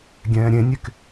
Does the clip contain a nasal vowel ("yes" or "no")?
yes